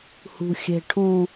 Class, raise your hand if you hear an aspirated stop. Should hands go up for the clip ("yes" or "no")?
yes